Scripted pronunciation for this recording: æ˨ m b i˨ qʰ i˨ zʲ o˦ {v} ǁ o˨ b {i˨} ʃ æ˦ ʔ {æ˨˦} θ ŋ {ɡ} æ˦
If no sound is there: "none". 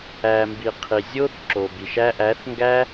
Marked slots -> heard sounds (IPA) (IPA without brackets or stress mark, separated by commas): θ, i˨, æ˨˦, ɡ